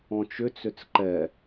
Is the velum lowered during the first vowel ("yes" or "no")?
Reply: yes